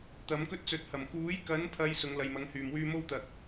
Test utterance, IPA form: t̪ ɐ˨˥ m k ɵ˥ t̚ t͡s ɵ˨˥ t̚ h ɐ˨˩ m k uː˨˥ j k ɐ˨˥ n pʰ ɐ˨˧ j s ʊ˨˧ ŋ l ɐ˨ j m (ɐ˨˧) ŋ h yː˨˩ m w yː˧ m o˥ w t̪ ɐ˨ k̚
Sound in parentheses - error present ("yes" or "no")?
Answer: no